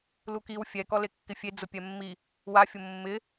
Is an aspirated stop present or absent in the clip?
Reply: absent